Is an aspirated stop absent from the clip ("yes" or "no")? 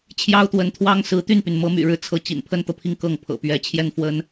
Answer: no